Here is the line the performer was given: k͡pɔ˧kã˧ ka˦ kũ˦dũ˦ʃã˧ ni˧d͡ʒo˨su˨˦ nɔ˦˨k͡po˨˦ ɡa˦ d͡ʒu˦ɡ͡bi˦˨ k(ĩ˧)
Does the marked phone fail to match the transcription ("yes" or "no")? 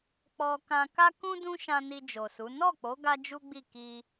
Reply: yes